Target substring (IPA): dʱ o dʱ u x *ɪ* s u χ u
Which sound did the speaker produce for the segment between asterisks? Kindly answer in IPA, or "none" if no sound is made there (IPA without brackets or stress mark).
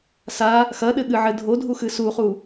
ɨ